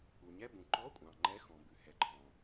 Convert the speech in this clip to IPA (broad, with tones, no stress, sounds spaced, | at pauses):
u˩ ɲ ɛ˧˥˧ b ũ˩ ǃ ɔ˧˥˧ kʷʼ ɑ̃˩ ŋ͡ǃ ɛ˧˥˧ x ɔ̃˩ b ʉ˩ h ɛ˩ ǃʰ ɔ̃˩